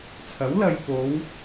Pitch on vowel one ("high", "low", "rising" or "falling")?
rising